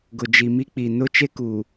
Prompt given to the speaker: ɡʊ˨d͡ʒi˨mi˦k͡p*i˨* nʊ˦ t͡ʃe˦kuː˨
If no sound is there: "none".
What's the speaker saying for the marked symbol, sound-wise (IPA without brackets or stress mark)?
i˨